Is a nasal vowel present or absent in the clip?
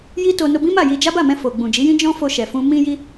present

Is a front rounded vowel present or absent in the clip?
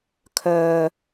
present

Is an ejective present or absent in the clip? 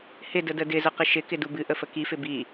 absent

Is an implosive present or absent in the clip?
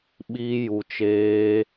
present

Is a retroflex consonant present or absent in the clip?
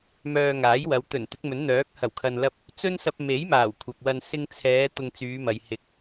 absent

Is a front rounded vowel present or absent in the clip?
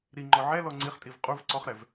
absent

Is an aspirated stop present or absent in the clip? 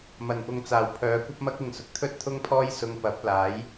present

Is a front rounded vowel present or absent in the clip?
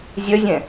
present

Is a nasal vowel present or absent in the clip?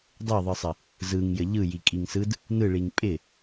absent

